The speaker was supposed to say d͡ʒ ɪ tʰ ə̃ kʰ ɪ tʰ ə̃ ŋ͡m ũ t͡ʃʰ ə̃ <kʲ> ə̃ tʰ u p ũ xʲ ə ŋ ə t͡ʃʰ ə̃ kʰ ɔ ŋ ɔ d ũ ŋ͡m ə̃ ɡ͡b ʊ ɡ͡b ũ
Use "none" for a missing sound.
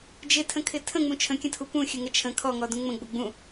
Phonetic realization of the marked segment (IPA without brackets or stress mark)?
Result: kʲ